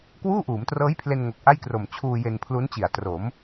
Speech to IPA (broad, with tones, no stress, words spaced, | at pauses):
kwuː˥˩ʔuː˩˦mtrɤː˦˥jpʰle˧n ŋo˨˩k̚ʔa˥˩jkro˨˩m t͡ɕʰuː˧ je˧npʰlu˦˥nt͡ɕi˨˩a̯ tro˩˦m